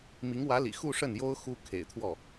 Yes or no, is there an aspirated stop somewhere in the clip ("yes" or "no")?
yes